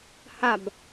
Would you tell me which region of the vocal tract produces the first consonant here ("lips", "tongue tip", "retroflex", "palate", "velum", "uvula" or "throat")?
throat